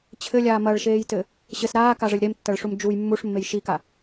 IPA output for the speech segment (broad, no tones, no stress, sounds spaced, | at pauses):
t͡ɕʰ ɘ lʲ aː m ɐ ɭ ʃ eː j t ɘ | ɕ ɘ s ɾ aː k a ʐ ɘ lʲ ɾ e m tː ɐ ɭ ʂ u m d͡ʒ u j mː u ʂ mː e j ʃ i k a